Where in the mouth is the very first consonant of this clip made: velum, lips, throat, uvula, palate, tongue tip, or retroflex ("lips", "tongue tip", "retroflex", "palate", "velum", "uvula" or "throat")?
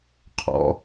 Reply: uvula